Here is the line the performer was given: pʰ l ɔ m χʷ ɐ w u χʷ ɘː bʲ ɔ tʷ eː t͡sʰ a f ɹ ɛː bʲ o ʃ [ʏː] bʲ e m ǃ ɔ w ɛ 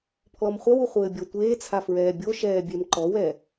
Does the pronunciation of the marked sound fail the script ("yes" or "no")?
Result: yes